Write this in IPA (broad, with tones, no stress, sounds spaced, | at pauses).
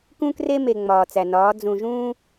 k ũ˦ k r e˦ m e˨ ŋ͡m ɒː˨ t͡s æ˨ n ɒː˨˦ d͡z ũ˨ ʒ ũː˦